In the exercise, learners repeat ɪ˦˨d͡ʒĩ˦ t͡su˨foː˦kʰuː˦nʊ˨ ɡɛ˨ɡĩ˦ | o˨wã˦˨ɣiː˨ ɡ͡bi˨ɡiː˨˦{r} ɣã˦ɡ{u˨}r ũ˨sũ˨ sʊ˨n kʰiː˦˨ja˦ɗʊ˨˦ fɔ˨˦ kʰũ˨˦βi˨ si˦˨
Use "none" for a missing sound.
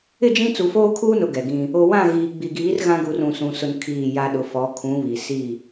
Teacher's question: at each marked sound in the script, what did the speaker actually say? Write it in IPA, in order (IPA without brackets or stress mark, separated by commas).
r, u˨